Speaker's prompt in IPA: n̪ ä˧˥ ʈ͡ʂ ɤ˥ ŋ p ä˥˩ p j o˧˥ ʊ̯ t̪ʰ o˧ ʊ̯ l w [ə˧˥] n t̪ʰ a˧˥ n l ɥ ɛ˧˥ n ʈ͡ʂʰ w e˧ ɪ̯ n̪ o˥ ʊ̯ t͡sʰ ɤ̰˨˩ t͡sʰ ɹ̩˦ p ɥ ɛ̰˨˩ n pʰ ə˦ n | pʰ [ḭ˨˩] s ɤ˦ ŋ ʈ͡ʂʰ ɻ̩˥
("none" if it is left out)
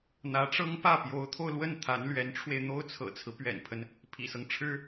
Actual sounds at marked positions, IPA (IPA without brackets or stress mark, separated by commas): ə˥˩, ḭ˨˩